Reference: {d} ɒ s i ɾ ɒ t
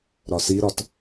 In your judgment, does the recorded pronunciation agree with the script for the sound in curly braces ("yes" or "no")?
no